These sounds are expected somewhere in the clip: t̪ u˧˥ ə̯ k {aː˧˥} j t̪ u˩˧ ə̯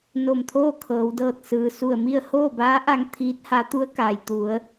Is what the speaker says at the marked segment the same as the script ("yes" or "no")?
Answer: no